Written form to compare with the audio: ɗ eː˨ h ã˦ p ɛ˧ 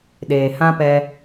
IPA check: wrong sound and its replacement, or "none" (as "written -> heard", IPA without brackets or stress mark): none